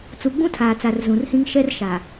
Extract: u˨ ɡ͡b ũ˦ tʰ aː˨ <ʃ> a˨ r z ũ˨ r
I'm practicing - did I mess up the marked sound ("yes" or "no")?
yes